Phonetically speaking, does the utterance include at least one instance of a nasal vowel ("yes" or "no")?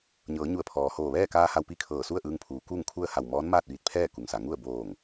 no